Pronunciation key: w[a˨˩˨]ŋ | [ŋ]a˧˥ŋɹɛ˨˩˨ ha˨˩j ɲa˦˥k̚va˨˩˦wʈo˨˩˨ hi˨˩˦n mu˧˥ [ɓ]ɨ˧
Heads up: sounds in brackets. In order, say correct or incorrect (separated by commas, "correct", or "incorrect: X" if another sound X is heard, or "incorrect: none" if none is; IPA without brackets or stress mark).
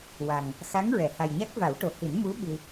incorrect: a˨˩, incorrect: x, correct